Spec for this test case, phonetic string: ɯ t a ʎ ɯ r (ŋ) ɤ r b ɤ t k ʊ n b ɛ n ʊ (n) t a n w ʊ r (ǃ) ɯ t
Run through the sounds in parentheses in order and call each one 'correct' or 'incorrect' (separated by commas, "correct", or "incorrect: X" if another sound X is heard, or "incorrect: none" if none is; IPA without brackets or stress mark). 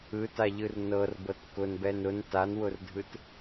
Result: incorrect: n, correct, incorrect: dʱ